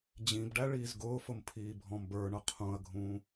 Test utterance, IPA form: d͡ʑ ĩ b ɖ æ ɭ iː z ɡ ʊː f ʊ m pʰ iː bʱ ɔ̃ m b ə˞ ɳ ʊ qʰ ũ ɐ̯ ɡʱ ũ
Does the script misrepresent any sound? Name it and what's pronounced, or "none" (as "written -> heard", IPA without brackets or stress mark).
none